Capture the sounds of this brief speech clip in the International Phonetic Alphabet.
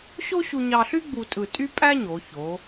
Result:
ɕo˥ɕu˧ɲɑ˧ɬy˥ ɡ͡bu˧tʼɯ˧˩ tʼy˥pʼæ˥ɲo˩˧ ço˩˧

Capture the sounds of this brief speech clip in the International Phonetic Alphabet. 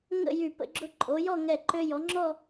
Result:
ŋə̰˥˧jy˧˩ pə̰˥˧ɡ͡ǁʊ˥˧ ǃʼo˩˧jɔ˥˧ ŋɛ˧˩ǃø˧jɔ˩˧ŋ͡ǁɔ˥˧

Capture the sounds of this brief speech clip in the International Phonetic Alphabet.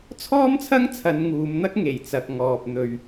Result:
t͡sʰɔː˥mt͡sʰɐ˥ŋ t͡sʰɐ˨˧nŋuː˨˧mn̪ɐ˥k̚ ŋe˨˩j t͡sɐ˨k̚ŋɔː˨p̚ n̪ɵ˨ɥ

